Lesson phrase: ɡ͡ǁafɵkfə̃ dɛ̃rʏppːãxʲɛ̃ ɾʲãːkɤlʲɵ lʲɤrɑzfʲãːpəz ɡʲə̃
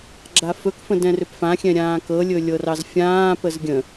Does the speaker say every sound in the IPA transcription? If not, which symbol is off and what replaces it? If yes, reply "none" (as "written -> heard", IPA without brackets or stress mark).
pː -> f